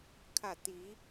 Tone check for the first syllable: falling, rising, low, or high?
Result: falling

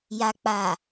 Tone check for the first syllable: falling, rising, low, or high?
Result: low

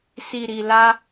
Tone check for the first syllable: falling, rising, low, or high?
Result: low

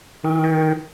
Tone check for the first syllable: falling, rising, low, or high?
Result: high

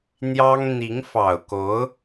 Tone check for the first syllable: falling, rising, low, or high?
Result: high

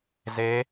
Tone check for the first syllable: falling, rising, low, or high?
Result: rising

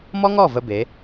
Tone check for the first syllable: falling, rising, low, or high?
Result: high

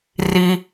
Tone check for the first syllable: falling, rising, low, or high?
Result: low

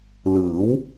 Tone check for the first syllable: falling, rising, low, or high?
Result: rising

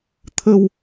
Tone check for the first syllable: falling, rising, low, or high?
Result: low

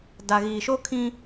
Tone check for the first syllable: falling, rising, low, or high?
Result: low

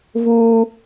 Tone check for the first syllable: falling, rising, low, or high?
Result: high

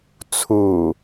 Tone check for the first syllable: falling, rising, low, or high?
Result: low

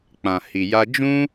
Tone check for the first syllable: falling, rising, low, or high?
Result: low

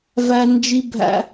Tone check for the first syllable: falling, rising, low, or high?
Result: high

